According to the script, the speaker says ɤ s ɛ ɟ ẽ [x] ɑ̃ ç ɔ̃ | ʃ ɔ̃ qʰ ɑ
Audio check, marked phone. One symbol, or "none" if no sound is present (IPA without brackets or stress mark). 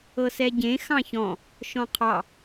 x